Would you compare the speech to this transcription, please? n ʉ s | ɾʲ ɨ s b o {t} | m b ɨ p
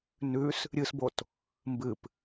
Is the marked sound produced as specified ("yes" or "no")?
yes